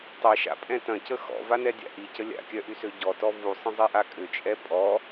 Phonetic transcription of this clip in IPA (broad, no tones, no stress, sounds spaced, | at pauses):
tˤ ɛ ʃ a̰ pʼ ɛ̃ t ɐ̃ c ə x ɔ̰ v a n ɛ dʲ a̰ ʔ i c ə lʲ a̰ kʲ œ ʔ y s ø ɟ ɔ t ɔ v u sˤ ə̃ zˤ i ʔ a kʼ ʏ t͡ʃʼ ɛ pʼ ɔ